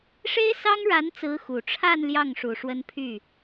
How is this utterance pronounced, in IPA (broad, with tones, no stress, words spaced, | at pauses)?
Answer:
ʂe˥ɪ̯sɑ˥ŋ ɻa˧˥nt͡sɹ̩˧˥ xu˨˩ʈ͡ʂʰa˥˧n ljɑ˥˩ŋʂu˨˩ ʂwə˥npʰy˥˩